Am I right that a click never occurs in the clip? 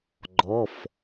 no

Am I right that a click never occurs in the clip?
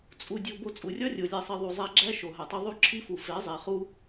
no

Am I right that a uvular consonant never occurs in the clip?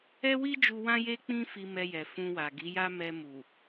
yes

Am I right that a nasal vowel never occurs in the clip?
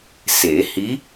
yes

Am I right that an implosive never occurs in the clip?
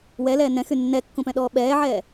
no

